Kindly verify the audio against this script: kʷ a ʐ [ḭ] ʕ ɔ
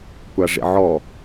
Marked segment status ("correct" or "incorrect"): correct